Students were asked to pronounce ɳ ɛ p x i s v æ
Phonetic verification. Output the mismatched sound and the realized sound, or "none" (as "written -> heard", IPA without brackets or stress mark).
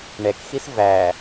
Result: p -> k